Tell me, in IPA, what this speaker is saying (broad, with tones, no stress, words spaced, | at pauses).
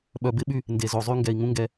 ɓœ˨bɪ˦ɓy˦ | nde˨zo˨zˤy˦ ŋɡɛ˨i̯ŋũ˦ŋɡɛ˦